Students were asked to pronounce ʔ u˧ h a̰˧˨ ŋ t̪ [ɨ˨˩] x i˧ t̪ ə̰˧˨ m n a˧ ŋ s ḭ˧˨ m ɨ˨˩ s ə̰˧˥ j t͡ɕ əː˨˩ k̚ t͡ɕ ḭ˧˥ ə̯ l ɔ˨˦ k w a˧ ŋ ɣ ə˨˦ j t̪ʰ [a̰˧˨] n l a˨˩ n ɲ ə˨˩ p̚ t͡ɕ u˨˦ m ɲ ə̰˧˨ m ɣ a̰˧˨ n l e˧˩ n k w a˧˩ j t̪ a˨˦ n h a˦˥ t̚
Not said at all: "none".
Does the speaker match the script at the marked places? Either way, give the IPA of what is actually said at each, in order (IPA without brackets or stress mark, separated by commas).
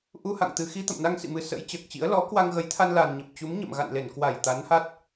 ɨ˨˩, a˧